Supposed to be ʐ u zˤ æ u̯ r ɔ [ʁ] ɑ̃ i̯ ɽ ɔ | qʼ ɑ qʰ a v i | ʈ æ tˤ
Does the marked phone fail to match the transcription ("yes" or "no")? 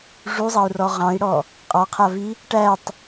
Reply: no